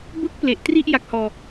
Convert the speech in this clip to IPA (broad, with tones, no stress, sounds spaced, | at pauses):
b ɯ˥˩ k̚ p l e˨˩ ʔ t r i˥˩ ʔ j a˦˥ k̚ h ɔː˧